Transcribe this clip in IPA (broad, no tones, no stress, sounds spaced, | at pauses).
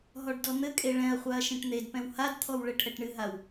ɦ ɔ ɖ d ɔ n̪ ɘ kʼ e ɭ ɛ̃ ɐ̯ χʷ a ɐ̯ ʃ ẽ ʈ n̪ e d p ɛ̃ w h a d t̪ʰ ɔ w ɭ ɘ ʈʰ ɛ ʈ ɳ ɨ ɦ a w